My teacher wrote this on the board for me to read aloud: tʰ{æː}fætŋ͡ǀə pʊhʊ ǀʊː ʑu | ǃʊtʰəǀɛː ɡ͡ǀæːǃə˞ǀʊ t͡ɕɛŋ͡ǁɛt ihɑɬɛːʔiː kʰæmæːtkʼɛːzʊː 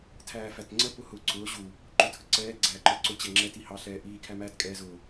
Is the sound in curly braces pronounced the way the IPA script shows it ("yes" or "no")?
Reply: yes